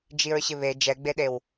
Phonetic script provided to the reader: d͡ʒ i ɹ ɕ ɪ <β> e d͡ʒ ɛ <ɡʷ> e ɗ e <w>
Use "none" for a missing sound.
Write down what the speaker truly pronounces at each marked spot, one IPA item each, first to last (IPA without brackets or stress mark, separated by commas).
β, ɡ͡b, w